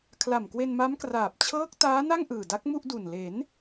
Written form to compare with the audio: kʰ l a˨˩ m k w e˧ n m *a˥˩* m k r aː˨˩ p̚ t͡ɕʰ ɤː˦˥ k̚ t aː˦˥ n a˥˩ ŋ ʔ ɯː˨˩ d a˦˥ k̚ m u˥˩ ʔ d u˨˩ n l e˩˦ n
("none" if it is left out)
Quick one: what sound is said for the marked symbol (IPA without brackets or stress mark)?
a˦˥